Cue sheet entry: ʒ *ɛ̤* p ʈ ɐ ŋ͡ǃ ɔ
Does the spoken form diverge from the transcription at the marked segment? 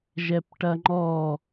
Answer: yes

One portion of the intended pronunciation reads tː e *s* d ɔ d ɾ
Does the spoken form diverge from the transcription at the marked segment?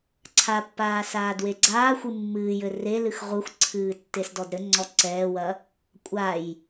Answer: no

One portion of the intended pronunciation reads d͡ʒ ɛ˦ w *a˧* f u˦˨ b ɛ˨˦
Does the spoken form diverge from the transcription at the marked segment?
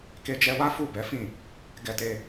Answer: yes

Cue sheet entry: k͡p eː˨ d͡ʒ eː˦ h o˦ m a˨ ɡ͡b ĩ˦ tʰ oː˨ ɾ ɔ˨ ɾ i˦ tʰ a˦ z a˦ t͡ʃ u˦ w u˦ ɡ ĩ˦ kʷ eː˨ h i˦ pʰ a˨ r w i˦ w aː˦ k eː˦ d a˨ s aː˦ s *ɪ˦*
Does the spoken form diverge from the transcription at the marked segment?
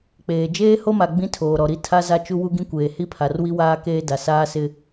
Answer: no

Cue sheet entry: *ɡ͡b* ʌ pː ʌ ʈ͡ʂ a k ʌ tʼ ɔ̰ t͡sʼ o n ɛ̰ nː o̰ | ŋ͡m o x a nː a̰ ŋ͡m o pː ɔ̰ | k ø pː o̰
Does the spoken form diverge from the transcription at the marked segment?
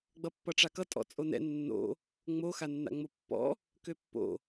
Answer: no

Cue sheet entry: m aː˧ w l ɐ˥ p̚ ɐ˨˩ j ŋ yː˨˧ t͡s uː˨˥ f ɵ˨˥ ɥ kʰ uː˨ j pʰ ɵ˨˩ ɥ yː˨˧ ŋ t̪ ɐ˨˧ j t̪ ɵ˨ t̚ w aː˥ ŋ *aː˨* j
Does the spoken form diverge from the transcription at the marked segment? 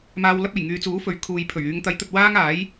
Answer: yes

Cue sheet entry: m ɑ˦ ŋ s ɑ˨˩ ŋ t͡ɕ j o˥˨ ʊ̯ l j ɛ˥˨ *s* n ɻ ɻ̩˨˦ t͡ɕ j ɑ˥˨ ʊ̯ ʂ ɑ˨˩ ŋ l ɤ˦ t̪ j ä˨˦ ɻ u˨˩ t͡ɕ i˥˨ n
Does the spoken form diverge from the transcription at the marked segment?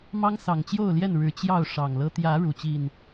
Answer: yes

